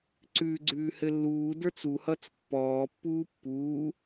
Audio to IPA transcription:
ǀ ʉ ɡ͡ǀ ʉː h ɘ lː uː d ə˞ t͡s u h ʌ t͡s pː ɔː pː uː pː uː

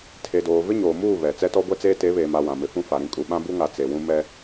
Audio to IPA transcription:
tʰ e˨ d oː˨ v ɪ˦ ɲ oː˨ m uː˦˨ β ɛ˨ t͡s ɛ˦ t ɔ˦ ɡʷ ɛ˦ t͡s eː˦ t e˨˦ β eː˨ m a˨ w ã˨ m ɪ˨ f ũ˦ f a˨ ɾ ĩ˦ kʼ u˨ ɓ ã˦ b u˦ ŋ a˨ t͡s e˨ w ũ˦ m ɛ˦

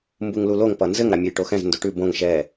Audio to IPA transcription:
m b u ŋ l u l o ŋ p ʌ n z ɘ ŋ ɾ a mʲ ɘ j ʈ o x ɛ̃ z n d o ʈ ʉ b õ ŋ ʃ ɛ

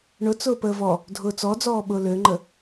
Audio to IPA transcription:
ɳ ʊ t͡s ʊː p əː v ɔ | dʱ ʊː t͡s ɔ d͡z ɔː ɓ ʊː l ø ŋ͡ǃ ə

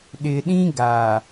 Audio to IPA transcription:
ɗ ɪ˨ ɗ ĩ˦ ɡ a˨

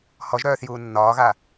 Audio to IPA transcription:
h ɔ ʒ ɾ œː θ j uː nː ɒː ɣ a

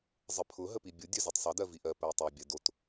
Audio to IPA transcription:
zˤ ə pʰ ʊ ɦ ə p i bʲ ʊ dʲ œ z i tˤ sˤ ʌ d ɜ v i ʔ ɜ p ɜ tˤ o bʲ ɜ d o t

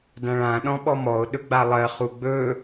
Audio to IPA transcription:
d ã ɭ ã ɗ ɔ̃ ɓ ɔ m ɔ o̯ ɗ ɵ ɡ͡b a lˠ ɜ χ u ɡ͡b ɵ

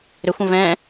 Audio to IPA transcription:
ɾ ʏ xʷ ə̃ v ɛ̃

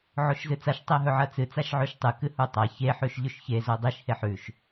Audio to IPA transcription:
ʕ o ʃ z ɨ t͡s a ʃ tˤ e ɦ ɵ ʕ ɐ t͡s ɨ t͡s a ʃ ʕ ʉ ʃ tˤ ɨ k ɨ h u tˤ a ç e ħ ʉ ʃ ʎ ʉ ʃ ç e z o dˤ i ʃ h e ħ ʉ ʃ

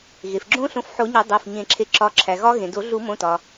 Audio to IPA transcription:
ɣ e˩ f ɡ͡ǁ õ˦˥ ɬ õ˨˦ f ħ o˨˩˦ ɲ ɒ˨˩˦ dˤ æ˩˧˩ f ɲ ẽ˨˩˦ ǁʰ e˨˦ ǁ ɒ˨˦ ǁʰ æ˩ ɣ ɒ˦˥ ɣ ẽ˩ d o˨˩˦ ɮ u˨˩˦ m õ˩˧˩ t ɒ˩

